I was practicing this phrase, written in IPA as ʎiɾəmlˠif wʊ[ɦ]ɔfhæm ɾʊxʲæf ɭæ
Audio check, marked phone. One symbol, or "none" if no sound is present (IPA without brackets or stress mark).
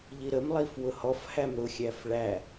h